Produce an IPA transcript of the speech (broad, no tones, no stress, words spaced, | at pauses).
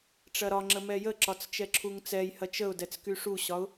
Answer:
ʈ͡ʂɐɾɒŋ͡ǁə mɛjəǁɒt͡s t͡ʃɛǁʰuŋt͡sɛjhɐ t͡ʃəʊ̯dɛt͡s kyʂuɕɒʊ̯